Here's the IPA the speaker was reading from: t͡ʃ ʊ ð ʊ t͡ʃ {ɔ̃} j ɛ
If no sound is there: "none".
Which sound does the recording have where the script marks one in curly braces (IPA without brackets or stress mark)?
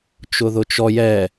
ɔ